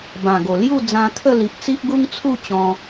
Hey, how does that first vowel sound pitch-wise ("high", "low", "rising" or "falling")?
low